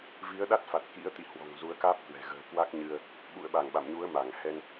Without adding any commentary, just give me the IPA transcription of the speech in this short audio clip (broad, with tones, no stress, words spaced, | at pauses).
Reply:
vi˨˦ə̯ɗa˦˥t̚fa˨˩t̚ kḭ˧˥ə̯t̪ḭ˧˨hwɔ̤˨˩ŋ zu˨˦ə̯kaː˦˥p̚kwɛ̤˨˩ ɣə̤ː˨˩ kwa˦˥k̚ɲɨ˧ə̯ | ɓṵ˧˨ə̯ɓa˧˩ŋ ɓa̰˧˨mɲu˨˦ə̯ma˧˩ŋ hɛ˧n